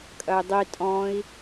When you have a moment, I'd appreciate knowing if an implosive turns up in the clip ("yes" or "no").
no